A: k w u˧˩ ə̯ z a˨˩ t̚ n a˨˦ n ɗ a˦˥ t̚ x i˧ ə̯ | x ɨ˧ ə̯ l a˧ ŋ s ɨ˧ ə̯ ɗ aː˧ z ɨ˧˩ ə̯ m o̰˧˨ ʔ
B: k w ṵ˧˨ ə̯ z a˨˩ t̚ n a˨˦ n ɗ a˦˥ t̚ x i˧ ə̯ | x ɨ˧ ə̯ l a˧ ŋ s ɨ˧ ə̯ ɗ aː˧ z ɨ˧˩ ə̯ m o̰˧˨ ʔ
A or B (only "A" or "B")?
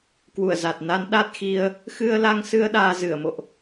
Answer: A